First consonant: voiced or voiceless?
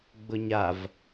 voiced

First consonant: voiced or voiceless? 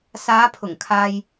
voiceless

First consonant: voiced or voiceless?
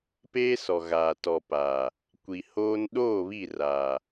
voiceless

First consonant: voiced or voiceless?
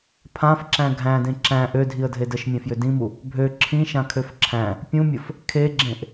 voiceless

